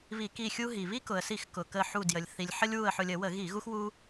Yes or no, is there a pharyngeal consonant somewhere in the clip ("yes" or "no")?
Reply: yes